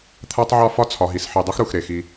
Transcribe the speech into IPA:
t̪ʰæ˦tˤʕɒ˦ fɒ˦t͡sʰɒ˨ɦi˨sħi˨ dˤu˦xɾu˨x ɾe˨xi˦

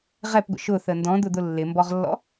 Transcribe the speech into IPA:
ʁɛpɡʷə̰ ʃʊθə ndɔ̃d̪ʊd̪ʊ lːɪmbɔʁlːɔ̰

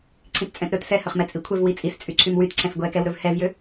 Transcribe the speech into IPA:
ǀʰĩtt͡sʼɛ̃tɾɵt sɛhɵχmɛ t͡sʼikʷʰɛv wit͡sʼist͡sʼyǀʰym wytǀʰɛ̃s ɡʷɛkɛwɾɵv hɛvjø

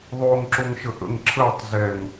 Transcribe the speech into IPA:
ðˤoːŋǁoŋʃəʔə̰ŋ ǁʰəːtˤ zɛŋ

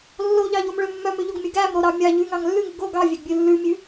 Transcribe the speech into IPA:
lːoʎɑʎomɭø mːœmøʎoɡmʲo ɡæmɾoɾɑ mʲɑ ʎʉŋɑŋ lːʉŋʉ ɡo ɡɑvʲæɡbʲʉ lːʉmʲʉ

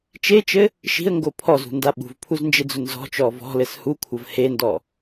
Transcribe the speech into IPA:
t͡ʃet͡ʃɘ | ʃi̤ə̯ŋɡo pʰɔzṳnda ɓṳvpʰuznd͡ʒed͡zu nzɔ̤t͡ʃɔ vɔ̤lɘs hukʷʰɐv hendɔ

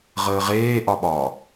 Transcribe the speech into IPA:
ʁəːʁeː ʔɒɓɒ

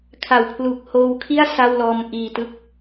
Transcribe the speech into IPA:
kʰa˨˩wpʰlu˨˩k̚ hoː˧wkʰi˥˩a̯ sa˥˩wlɔː˧m ʔiː˨˩tɯ˦˥k̚

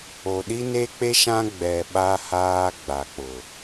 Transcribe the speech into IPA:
o˨ɗi˦ ne˦k͡pe˦ʃã˦ ɡ͡bɛ˨ ɓa˦haː˦ ɡ͡ba˨k͡pʊ˨

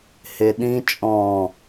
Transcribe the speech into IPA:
heɗĩ t͡ʃʼɔ̃

